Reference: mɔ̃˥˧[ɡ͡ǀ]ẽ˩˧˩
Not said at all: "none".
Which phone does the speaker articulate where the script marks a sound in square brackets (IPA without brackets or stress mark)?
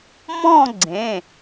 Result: ɡ͡ǀ